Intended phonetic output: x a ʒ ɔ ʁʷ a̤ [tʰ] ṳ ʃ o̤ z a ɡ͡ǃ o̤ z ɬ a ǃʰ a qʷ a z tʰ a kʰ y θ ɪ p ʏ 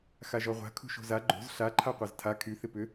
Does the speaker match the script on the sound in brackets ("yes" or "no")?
no